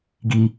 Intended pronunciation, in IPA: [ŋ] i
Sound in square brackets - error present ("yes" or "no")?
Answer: yes